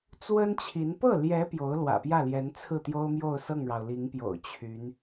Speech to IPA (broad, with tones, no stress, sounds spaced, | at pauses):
t͡s w ə˥ n t͡ɕʰ i˧˥ n p ɤ˥˩ l j ɛ˧˥ p j o˧˥ ʊ̯ l w ä̰˨˩ p j ä˥˩ l j ɛ˧˥ n t͡sʰ ɹ̩˥˩ t̪ j o˥ ʊ̯ m j o˥˧ ʊ̯ s ɤ˥˩ ŋ ɻ ɑ˩ ʊ̯ l i˧˥ ŋ p j o̰˨˩ ʊ̯ t͡ɕʰ y˧˥ n